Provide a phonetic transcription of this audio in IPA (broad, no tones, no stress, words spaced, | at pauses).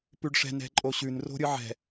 pʉɖʂɛ̤ nɛ̤ǃʼoɕʉn ro̤ɾʲɯʕɛ̤